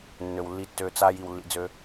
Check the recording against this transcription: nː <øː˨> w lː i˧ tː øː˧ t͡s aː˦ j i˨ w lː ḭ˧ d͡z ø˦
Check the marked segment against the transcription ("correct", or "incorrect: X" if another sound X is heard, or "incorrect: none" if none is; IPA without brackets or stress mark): incorrect: ø˨